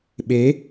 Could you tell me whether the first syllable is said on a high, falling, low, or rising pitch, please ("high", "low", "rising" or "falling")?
rising